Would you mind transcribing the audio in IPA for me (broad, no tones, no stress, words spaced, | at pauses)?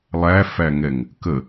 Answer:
lˠæfæŋɛŋ | kə